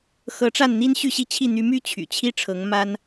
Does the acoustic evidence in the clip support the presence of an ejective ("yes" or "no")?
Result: no